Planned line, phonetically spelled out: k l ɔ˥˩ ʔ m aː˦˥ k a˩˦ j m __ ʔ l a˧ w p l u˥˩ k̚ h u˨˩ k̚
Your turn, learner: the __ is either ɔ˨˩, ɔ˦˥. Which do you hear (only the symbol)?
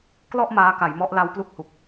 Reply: ɔ˦˥